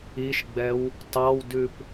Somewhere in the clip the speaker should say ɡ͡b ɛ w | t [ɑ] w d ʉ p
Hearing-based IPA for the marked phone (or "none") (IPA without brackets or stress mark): ɑ